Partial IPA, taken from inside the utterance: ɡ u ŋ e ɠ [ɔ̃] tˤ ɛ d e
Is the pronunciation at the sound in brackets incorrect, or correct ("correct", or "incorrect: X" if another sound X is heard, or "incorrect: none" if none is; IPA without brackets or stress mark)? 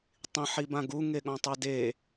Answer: correct